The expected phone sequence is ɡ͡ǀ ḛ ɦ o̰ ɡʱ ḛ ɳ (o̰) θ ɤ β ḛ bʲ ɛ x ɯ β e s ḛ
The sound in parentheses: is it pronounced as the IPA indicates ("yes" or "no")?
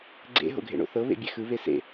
yes